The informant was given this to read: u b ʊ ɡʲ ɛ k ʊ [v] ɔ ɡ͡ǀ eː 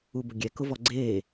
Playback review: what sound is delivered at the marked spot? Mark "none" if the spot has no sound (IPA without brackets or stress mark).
v